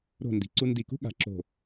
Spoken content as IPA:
ɾo̤˧˩ ndi̤˩˧ǀu˧ndi˧˩kṳ˥ ɠa̤˩˧ǁo̤˧˩

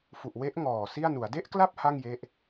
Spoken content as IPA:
fu˨˩ʔwe˦˥ʔ ŋɔː˨˩si˥˩a̯nu˩˦a̯ de˥˩ʔkla˥˩p̚ ha˥˩ŋje˦˥ʔ

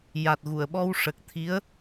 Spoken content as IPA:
ja˨˩t̚ɣu˨˩˨ə̯ɓɔ˧w ʂə˨˩k̚ t̪ʰi˧˥ə̯

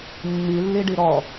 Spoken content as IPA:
mːilːiɖi ɾɔ

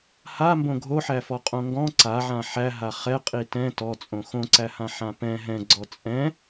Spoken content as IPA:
hambõ ɡʱoħæfɔ qʼõŋɡɔ̃ ǀaʕã ħæɦa χɛqʼi tɛ̃ tɔt͡sʼõ xõǀæhã ħãpɛ̃ ɦɛ̃ɡ͡ǀɔ t͡sʼɛ̃

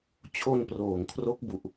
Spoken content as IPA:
t͡ɕʰo˧nproː˨˩ŋkʰro˦˥k̚bu˨˩ʔ

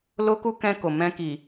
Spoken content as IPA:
lo˦ku˦ kɛ̃˧ko˨ mɛ̃˧ki˨

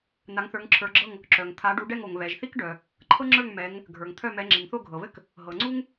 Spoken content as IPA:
na˨˦ŋθə˞˨˦ŋǁʰə˞˨˦ɡ͡ǁɤ˥˨ŋ | ǁœ˩ŋt̪ʰa˨˦ ɖu˨˦ɖɛ˥˨ŋo˩ŋ βɛ˩ʒθi˥kɖœ˩ | ǃʰɤ˥ŋ͡ǁə˞˥˨ŋ mɛ˨˦ŋ | ɡʱə˞˩ŋt̪ʰœ˥˨mɛ˨˦ ŋ͡ǁi˩ŋθo˥˨ɡʱɤ˩βɘ˥k | ɦɤ˩ ŋ͡ǀu˥ŋ

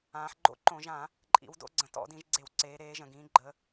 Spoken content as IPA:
ãː˩˧ħɡ͡ǃo̰˦ǃõ˧˩˧ʒã˧˩˧ | ǃʼḭ˩˧wdo̰˦ɡ͡ǀə̃˩˧ tɔ̰˧˩˧dĩ˩˧ʒɡ͡ǀe˧˩˧wǀeː˩˧ ɾeː˩˧ ʒə̃˩ɡĩː˩˧ɡ͡ǃə˩˧

